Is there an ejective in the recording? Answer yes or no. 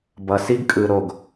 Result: yes